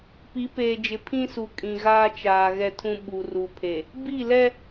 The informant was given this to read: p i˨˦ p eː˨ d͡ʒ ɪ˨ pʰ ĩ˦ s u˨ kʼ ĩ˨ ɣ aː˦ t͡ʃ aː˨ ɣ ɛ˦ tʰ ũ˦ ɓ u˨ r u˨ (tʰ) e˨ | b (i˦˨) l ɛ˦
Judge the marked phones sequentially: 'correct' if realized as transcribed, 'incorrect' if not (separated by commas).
incorrect, correct